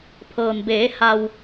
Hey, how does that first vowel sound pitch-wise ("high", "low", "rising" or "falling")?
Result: low